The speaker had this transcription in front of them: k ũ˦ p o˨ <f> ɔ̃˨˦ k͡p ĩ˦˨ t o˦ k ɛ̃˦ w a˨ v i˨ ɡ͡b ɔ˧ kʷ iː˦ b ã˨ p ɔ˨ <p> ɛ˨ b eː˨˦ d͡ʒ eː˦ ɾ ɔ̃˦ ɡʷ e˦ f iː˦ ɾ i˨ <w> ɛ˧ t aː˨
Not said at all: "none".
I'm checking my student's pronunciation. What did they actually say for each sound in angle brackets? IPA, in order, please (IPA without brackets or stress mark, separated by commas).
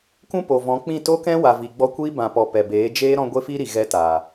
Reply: v, p, ɣ